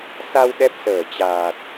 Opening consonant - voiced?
no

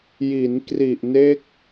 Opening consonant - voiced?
yes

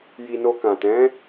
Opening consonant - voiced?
yes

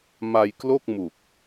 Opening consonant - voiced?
yes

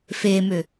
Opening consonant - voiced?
no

